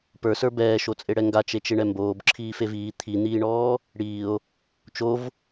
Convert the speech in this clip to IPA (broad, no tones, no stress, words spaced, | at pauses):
pə˞sə˞ bɛːʃot͡sʼeɽɛ ŋɡat͡ʃet͡ʃeɳɛ mboːbǁʰiːfev iː t̪ʰin̪iːɳɔː | ɽiːo̯ | t͡ʃov